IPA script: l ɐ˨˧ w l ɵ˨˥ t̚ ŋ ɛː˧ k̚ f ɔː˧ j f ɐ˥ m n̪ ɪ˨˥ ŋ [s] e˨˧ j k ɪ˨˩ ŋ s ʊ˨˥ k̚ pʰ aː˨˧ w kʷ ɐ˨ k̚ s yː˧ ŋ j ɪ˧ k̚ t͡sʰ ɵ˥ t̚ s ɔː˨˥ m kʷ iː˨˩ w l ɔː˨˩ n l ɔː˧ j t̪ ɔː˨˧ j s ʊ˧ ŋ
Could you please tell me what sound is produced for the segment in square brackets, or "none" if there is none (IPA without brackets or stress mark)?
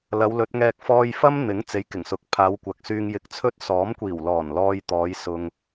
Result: t͡s